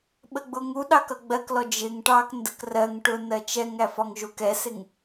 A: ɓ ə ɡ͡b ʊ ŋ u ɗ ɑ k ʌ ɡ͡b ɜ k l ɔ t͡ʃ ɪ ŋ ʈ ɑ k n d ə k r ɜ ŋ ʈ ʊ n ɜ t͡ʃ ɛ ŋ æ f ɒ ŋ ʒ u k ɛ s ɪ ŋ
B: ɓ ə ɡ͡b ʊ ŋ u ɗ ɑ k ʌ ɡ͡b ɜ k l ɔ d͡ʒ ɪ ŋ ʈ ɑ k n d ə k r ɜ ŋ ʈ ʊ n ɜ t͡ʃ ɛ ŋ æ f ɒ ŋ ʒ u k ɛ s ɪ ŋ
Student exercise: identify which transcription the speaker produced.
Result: B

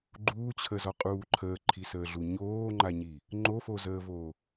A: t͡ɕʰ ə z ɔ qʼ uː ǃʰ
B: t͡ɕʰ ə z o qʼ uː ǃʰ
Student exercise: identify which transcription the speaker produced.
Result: A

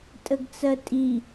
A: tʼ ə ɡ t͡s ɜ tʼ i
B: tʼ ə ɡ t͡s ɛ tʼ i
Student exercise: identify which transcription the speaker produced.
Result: A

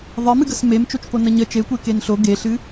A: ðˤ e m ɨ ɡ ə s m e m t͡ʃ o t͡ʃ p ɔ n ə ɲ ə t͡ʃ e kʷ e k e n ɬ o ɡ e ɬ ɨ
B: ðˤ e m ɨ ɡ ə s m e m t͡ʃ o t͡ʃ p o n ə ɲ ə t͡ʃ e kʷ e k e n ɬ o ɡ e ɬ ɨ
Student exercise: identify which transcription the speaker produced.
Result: B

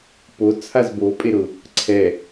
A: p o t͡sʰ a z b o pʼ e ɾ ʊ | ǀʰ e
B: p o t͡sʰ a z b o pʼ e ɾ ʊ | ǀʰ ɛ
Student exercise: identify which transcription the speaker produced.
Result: B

